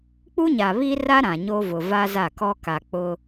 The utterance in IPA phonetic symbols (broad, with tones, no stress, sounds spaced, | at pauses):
k͡p u˦ ɲ a˨ β i˦ r a˦ ɾ ã˨ ɲ o˦ v ʊ˨ v a˦ z a˦˨ k ɔ˦ k a˨ k͡p ʊ˦